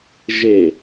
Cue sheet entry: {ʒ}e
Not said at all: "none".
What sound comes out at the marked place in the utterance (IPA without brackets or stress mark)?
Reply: ʒ